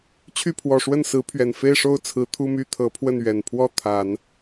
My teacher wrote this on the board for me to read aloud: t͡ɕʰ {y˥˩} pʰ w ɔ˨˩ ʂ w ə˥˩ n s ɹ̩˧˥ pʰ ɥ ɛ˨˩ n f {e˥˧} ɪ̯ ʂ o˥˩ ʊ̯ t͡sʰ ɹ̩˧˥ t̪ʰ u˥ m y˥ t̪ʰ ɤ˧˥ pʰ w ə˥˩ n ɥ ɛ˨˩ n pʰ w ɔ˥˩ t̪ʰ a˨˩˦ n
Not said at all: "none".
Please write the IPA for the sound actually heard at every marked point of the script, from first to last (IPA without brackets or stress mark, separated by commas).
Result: y˥˩, e˥˧